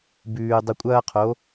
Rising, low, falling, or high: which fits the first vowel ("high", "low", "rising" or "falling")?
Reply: low